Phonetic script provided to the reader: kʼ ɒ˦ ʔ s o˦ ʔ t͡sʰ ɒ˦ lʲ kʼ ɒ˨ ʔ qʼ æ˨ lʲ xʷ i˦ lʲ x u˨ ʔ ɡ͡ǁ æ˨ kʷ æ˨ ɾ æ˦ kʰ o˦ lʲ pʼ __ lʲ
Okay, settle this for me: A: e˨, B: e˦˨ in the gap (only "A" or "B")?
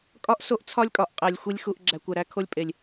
A